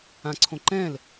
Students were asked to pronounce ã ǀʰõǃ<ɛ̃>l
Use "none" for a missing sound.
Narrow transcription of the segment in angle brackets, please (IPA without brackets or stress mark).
ɛ̃